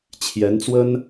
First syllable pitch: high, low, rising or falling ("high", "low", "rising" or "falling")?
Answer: rising